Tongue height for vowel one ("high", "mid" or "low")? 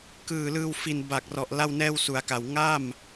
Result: high